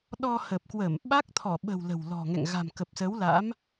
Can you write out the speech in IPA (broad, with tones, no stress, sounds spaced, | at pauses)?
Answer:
ɗ ɔ˧ h ə˨˩ p̚ k w ə˧˩ m ɓ a˦˥ k̚ t̪ʰ ɔ˧˩ ɓ ə̤˨˩ w l ə̤˨˩ w l ɔ̤˨˩ ŋ ɛ̰˧˨ ŋ ɣ a̤˨˩ m k ə˨˩ p̚ s ə˨˦ w l a̰˧˥ m